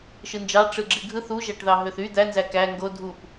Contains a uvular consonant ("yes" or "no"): no